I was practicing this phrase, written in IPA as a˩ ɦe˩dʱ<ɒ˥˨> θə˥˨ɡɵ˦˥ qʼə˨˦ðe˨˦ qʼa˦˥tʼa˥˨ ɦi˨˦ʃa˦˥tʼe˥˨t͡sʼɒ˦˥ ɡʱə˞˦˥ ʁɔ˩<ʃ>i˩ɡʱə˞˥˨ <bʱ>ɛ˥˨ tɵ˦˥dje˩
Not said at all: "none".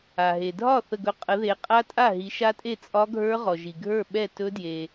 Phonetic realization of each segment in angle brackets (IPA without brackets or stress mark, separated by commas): ɒ˥˨, ʒ, ɓ